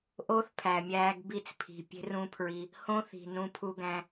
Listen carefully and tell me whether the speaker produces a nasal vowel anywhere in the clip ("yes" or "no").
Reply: yes